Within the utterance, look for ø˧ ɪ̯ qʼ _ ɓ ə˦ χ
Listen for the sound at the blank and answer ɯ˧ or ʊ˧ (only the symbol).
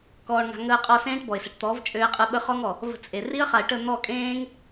ɯ˧